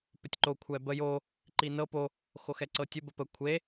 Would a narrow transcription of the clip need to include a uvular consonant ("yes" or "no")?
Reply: no